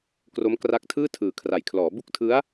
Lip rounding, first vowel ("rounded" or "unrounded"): rounded